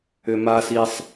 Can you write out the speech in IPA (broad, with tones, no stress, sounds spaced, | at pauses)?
ʏ˨ m a˦ s i˦ sˤ